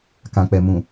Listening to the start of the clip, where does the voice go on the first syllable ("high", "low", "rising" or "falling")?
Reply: low